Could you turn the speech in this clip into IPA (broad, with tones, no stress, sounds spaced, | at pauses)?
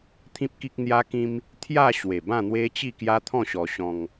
t̪ʰ ĩ˦ p̚ k i˦ k̚ n̪ j a˦ k ĩ˦ m | t̪ʰ j a˥˧ ɕ w e˨˩ b ã˥˧ n̪ w e˦ t͡ɕ i˥˧ k j a˦ t̪ʰ ɔ̃˥˧ ɕ ɔ˧ ɕ ɔ̃˧ ŋ